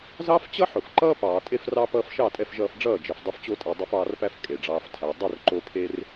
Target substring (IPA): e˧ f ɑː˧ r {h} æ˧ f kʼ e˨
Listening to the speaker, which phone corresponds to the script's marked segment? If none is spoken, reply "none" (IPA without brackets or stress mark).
p